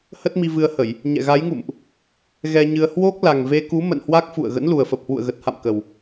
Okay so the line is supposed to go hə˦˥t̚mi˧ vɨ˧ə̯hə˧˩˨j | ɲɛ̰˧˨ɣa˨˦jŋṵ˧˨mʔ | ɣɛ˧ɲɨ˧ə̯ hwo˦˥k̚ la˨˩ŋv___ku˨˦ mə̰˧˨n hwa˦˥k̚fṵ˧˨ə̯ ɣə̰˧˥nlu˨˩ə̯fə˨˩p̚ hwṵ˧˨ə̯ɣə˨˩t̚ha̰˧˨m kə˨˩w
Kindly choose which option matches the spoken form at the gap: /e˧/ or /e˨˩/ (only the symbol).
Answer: e˧